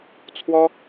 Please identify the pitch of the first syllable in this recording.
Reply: high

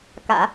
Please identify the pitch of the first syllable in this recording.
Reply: low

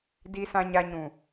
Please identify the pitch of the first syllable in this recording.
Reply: low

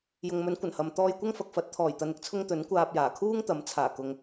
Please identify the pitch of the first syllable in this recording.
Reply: low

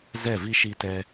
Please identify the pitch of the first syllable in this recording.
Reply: falling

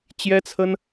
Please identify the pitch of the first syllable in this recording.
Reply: high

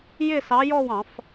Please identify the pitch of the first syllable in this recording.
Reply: falling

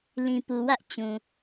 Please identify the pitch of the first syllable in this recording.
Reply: low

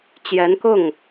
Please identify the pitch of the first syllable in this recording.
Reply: rising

